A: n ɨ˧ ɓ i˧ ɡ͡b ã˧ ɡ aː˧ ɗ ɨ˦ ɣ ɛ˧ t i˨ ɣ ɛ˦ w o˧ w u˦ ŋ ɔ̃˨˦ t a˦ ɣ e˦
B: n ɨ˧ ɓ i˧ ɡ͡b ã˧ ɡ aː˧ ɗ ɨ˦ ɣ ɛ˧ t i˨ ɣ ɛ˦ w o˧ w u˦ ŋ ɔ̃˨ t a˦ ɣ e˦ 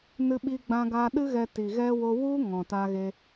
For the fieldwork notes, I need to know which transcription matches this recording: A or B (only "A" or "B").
B